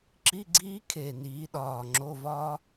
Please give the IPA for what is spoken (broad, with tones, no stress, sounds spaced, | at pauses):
ǁ i˧˥˧ ɡ͡ǀ iː˦˥ kʰ eː˨˩ n iː˩˧ ɗ ɒː˨˩ ŋ͡ǁ o˧˥˧ v ɒː˦˥